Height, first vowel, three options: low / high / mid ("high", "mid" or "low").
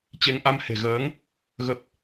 mid